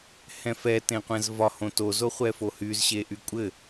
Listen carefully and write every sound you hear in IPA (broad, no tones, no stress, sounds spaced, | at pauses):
h ɛ̃ f ɛ t ẽ qʷ ɛ̃ z v ɒ h õ t o z o χʷ ɛ f o h y z ɕ e ʔ y kʷʼ ɘ